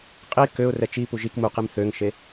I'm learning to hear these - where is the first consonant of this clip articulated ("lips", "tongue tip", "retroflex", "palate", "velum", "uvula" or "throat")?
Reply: uvula